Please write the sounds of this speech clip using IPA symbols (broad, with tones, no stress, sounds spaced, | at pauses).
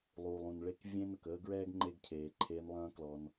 lˠ uː˨ lˠ ũ˨ n ɭ e˦ k vʲ ẽ˦ n ə˨ k əː˦ ɡ ɹ ɛː˦ ɡ ŋ͡ǃ e˦ ɡ cʰ eː˨ ǃʰ eː˧ n lˠ ɐ̃ː˦ k l ɔ˧ n